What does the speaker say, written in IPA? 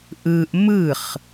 ʔ ɯ ʔ m ɯ χ

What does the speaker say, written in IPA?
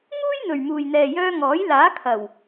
ŋ uː˥ j n̪ ɵ˨ ɥ m uː˨ j n̪ ɛː˨ j œː˧ ŋ ɔː˨˥ j l aː˨˥ kʰ ɐ˨˩ w

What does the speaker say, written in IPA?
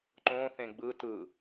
ǃ õ θ ẽ ɡ͡b ɯ t ɯ

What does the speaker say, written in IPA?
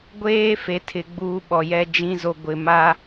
ɡʷ eː˦ f e˨ tʰ ɪ˨ ɡ͡b uː˦ ɓ ɔ˨ j ɛ˦ d͡ʒ ĩ˦ z o˨ ɡʷ ɪ˨ m a˦

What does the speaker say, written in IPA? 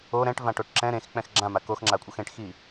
o ɾ ɛ̃ ʈ v ã ʈ o ʈ ǁ ɛ̃ ɾ ẽ x k͡p ɛ̃ x ɡ͡ǁ ã m a k o x ŋ͡ǁ a kʷʼ ʌ x ẽ ʈ x i

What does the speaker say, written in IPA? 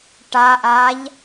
ʈ a ʔ a ʎ

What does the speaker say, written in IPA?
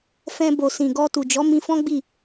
f ɛ̃˧ b o˨ s ĩ˨ ɡ ɔ˧ t u˨ d͡ʒ ɔ˨˦ m ĩ˧ f ɔ̃˦ ɡ͡b i˦˨

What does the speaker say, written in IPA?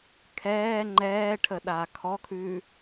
kʰ ɛː ŋ͡ǃ ɛː ʈʰ ə ɗ aː kʰ ɔ kʰ ʉː

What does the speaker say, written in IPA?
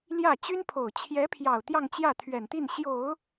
l j ä˥˩ t͡ɕ y˥ n pʰ o˨˩ ʊ̯ t͡ɕʰ j ɛ˧˥ pʰ j ɑ˨˩ ʊ̯ t̪ j ɑ˥˧ ŋ t͡ɕ j ä˥˩ t̪ʰ ɥ ɛ˨˩ n t̪ i˥˩ n ɕ j o˨˩˦ ʊ̯

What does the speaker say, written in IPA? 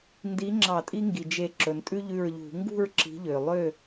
n d i˨˦ ŋ͡ǁ ɑ˧˩˧ tʼ i˦ ŋ ɡ i˩ d͡ʒ e˧˩ ǁ ɵ˩ n tʼ ʉ˦ ʎ ʉ˧˩ ɹ ʎ ṳ˧˩˧ ŋ ɡ ṳ˥˨ ɹ ǁ i̤˨˦ ʎ ø˩ lˠ ø˥˨

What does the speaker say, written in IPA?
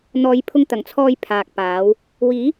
n̪ ɔː˨˧ j pʰ ʊ˧ ŋ t̪ ɐ˨˩ ŋ t͡sʰ ɔː˧ j pʰ aː˨ k̚ p aː˨˥ w | w iː˨˥

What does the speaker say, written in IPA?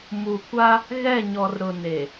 m u˨ kʷ a˦ | ɣ ɛ˦˨ ɲ ɔ˨ r ɾ ʊ˨ n e˨

